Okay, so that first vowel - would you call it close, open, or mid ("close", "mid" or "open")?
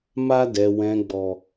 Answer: open